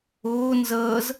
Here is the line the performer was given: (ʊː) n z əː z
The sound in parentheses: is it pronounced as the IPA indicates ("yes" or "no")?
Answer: yes